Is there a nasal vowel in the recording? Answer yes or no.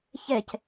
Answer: no